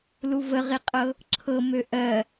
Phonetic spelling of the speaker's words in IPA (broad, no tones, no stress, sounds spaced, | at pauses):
l u v ə ʁ i qʼ ɤ | ǁʰ ɤ m ø ʔ ɜ